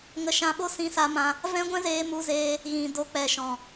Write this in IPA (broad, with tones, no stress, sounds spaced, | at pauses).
ŋ ə˧ ʃ ã˧ ɓ o˦ s ĩ˧ s a˧ m ã˧ | v ɛ̃˦ ɡʷ ɛ̃˦ z eː˧ m u˧ z eː˧ | ɣ ĩ˨ d o˧ k͡p ɛ˨ ʃ ɔ̃˨